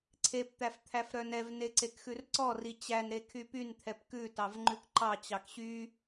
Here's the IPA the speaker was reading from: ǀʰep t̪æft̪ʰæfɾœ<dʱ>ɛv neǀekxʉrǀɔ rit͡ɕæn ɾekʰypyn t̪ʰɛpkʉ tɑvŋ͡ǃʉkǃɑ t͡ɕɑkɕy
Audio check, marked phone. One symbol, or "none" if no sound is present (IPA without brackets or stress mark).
n